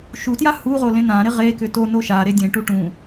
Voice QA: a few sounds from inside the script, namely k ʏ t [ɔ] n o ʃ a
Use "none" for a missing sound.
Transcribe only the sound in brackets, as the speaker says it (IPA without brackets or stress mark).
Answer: o